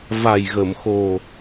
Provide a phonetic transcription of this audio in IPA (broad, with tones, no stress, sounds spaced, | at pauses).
v a˨˩ j ɣ ə˨˩˨ m x o˨˩